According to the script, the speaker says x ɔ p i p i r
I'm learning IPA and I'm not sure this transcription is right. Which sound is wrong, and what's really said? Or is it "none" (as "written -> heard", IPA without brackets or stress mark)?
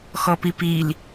r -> l